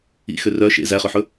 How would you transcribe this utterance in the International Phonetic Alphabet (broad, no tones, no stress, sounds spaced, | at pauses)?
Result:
ḭ x ø r œ ʃ ḛ z æ χ ø ħ ɵ